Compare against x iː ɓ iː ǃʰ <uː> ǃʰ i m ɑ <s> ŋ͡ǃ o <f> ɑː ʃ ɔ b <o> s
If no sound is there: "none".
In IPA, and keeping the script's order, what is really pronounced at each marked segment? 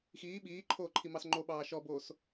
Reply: oː, s, ɓ, oː

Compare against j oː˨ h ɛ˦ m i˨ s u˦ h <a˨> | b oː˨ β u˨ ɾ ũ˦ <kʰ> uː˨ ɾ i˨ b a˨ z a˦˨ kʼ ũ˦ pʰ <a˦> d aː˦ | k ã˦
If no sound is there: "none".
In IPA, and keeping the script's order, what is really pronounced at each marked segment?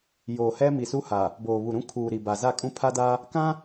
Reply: a˨, kʰ, a˦

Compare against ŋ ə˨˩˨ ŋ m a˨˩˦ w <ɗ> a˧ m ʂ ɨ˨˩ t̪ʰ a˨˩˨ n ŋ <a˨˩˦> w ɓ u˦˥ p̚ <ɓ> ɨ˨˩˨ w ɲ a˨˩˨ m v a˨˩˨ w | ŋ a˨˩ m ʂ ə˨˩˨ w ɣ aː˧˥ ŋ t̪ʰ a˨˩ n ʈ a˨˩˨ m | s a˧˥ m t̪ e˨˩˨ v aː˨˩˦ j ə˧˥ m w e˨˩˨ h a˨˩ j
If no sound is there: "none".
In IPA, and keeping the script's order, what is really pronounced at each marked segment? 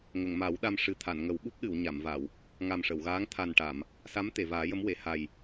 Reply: ɗ, ə˨˩˦, ɗ

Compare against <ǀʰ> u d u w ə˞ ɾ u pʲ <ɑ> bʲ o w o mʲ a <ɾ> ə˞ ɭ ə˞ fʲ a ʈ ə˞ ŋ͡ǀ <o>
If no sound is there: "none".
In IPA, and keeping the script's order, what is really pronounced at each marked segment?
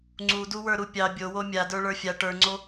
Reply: ŋ͡ǀ, ɑ, d, o

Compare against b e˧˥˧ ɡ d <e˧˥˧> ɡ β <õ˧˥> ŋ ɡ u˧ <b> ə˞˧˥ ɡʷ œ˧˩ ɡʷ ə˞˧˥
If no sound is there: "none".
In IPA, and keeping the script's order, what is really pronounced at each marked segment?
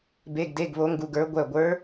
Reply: e˧˥˧, o˧˥, ɡ

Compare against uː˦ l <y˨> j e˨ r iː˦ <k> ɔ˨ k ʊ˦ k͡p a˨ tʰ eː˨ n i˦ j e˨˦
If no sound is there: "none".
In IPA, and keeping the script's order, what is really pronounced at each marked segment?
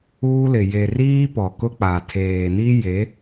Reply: ɪ˨, p

